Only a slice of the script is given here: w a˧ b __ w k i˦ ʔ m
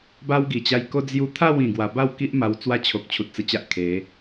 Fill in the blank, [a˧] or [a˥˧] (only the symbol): a˥˧